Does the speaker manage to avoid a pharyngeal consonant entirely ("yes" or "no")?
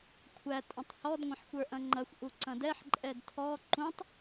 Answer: no